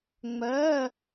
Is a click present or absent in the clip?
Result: absent